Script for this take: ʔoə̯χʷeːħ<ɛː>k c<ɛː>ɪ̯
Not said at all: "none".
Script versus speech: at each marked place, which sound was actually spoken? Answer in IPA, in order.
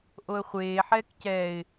ɛː, ɛː

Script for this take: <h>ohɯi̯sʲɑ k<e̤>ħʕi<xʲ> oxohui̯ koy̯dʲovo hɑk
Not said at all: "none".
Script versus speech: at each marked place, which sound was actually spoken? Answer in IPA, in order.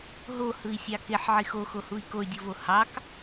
ɦ, e, x

